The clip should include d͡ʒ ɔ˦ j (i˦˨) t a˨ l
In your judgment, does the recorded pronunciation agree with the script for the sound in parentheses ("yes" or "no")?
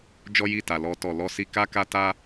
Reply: yes